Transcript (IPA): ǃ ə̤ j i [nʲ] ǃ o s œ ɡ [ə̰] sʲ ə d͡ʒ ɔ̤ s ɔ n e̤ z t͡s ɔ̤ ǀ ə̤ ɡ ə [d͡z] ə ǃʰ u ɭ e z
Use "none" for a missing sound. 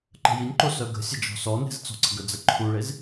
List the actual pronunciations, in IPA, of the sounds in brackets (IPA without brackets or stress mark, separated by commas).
nʲ, ə̤, d͡z